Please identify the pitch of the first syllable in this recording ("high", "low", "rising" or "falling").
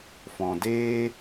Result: low